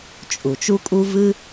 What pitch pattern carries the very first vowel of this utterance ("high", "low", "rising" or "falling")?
low